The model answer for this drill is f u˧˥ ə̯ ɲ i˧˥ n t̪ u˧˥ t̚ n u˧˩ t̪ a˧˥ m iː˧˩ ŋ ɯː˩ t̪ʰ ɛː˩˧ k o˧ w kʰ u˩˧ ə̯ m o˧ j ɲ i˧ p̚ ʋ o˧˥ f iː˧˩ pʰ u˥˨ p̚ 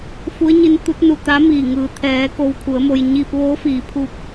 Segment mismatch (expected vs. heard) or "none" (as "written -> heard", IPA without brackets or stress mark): none